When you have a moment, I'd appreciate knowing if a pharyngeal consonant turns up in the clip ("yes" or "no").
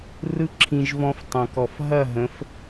no